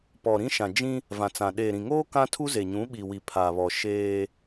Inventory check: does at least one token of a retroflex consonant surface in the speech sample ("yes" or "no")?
no